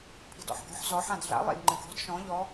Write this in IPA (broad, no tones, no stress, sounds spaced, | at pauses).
pʰ i̤ d ɔ̰ ħ ɡ ɔ̤ ħ z ɔ ħ ã d ɮ a̰ lˠ ḭ d ŋ͡ǃ ɨ ɡ ɔ̤ d ʃ ɔ̃ ʎ ɔ